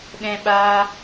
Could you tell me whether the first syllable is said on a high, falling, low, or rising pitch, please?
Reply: high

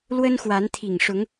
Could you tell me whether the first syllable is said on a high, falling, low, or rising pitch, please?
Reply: high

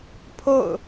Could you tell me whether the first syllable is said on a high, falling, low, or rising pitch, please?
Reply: falling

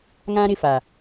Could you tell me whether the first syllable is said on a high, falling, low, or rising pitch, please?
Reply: high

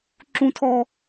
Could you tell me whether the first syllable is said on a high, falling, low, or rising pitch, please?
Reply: high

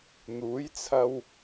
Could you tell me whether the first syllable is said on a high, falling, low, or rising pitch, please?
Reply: rising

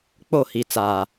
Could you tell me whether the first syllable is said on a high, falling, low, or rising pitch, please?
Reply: falling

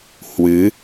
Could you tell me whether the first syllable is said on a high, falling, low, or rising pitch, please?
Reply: rising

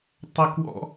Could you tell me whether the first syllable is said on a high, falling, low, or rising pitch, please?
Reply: high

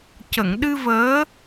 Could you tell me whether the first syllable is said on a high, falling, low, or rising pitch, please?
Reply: low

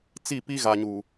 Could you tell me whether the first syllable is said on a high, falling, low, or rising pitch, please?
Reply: falling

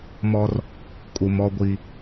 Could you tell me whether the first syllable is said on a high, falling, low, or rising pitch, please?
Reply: high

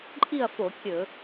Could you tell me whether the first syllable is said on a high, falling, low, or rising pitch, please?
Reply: falling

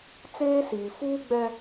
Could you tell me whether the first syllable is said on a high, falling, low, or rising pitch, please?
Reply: high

